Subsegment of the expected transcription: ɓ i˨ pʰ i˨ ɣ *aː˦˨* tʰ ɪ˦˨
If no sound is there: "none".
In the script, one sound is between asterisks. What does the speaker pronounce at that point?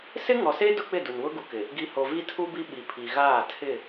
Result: aː˦˨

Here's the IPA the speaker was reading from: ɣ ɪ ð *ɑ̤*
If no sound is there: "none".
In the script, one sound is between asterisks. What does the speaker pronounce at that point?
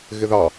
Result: ɑ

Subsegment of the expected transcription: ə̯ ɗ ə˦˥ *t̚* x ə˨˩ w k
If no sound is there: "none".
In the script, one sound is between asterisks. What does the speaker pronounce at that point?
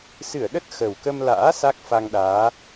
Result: t̚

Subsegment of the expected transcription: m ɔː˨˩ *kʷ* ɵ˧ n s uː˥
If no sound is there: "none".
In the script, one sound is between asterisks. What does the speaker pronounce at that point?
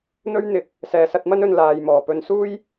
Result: p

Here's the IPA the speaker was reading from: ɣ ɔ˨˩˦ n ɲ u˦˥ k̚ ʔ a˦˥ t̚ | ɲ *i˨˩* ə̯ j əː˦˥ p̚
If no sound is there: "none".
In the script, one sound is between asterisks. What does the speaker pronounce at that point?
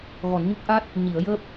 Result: i˨˩˦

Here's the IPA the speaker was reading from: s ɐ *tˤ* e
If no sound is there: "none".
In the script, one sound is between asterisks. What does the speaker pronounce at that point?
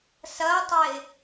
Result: tˤ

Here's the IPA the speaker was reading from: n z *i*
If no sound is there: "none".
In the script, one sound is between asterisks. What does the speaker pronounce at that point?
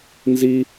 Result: i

